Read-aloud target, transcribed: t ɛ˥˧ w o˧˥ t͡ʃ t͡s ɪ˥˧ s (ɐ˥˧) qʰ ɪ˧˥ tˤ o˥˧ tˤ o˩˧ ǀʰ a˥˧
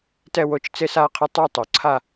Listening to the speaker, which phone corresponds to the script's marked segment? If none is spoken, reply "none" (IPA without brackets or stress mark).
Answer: a˥˧